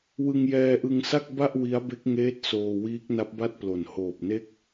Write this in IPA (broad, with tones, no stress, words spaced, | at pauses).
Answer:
wɯ˧ŋjɛː˧ʔɯ˧ŋ sa˥˩k̚ba˥˩ʔ wi˦˥a̯be˦˥k̚ŋeː˦˥t̚ soː˧ wiː˦˥k̚na˦˥p̚ba˥˩t̚plo˨˩n hoː˨˩p̚ne˥˩k̚